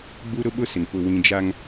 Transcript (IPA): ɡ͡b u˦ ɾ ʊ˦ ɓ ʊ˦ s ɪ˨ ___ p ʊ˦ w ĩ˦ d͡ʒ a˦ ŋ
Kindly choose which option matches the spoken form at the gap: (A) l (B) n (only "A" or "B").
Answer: B